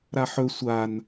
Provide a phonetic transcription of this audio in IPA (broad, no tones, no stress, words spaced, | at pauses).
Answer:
ɾaħɵ sʷan